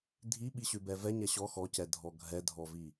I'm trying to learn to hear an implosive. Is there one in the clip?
yes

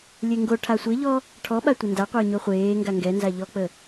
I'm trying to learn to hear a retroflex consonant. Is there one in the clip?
yes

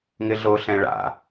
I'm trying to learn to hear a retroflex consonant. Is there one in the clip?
yes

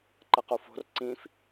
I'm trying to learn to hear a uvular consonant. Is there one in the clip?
yes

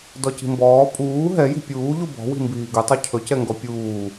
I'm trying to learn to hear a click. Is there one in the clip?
no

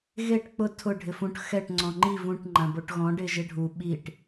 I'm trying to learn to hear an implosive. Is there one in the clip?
yes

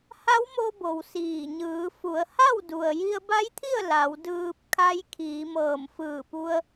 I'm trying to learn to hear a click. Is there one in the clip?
no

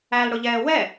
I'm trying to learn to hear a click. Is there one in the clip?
no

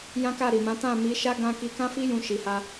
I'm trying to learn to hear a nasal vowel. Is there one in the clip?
yes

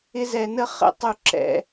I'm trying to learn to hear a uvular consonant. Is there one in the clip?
yes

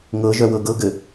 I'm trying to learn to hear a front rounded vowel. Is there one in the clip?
yes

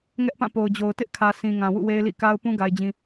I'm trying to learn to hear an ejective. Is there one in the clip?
no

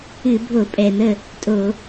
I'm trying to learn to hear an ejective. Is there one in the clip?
yes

